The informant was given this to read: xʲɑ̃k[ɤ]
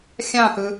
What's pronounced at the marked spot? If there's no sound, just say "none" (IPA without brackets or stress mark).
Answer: ɯ